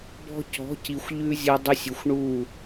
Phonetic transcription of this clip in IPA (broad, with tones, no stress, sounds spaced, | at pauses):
b ɔ̤˧ c ɔ̤˨˦ c i˨ xʷ ʎ ʉ˦ zʲ ɔ˧ dˤ y˧ sʲ ʏ˨ xʷ ɳ u˦˨